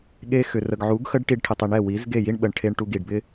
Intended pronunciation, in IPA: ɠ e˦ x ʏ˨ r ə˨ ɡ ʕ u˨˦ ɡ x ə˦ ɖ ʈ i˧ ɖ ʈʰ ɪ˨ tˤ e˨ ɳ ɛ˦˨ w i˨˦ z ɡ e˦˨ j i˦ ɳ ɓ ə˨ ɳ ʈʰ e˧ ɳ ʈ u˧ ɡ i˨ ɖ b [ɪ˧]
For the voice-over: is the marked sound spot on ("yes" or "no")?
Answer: no